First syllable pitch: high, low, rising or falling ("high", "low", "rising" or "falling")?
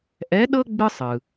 rising